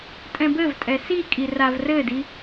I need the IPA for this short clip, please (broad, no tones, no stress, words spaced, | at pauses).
tʼɛ̃bɘvtʼɛ si kʼiravrɘdi